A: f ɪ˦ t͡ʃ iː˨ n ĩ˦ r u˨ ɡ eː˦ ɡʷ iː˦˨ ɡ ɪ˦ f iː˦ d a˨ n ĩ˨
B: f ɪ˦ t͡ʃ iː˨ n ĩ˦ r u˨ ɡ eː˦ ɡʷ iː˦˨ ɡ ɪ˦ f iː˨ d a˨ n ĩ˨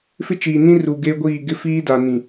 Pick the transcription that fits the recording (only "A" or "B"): A